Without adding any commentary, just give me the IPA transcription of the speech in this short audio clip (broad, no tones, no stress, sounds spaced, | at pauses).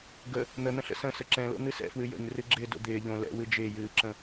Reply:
ɡ ə | n̪ ə n̪ ə̃ ɬ ə̰ s ə̃ s ə ǁ ɛ̃ l o̰ n̪ ɨ s ɛ̰ f w ɨ j ə̰ ɲ r ɨ ɡ͡ǁ ɪː d o̰ d̪ ɪː ʎ õ l ɛ̰ w ɨ d͡ʒ ɪː j ɨː ǁ ə̃